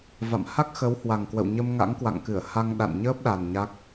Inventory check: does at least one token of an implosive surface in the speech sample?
yes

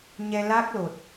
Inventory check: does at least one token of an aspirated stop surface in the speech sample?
no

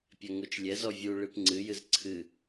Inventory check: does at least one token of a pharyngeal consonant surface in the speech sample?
no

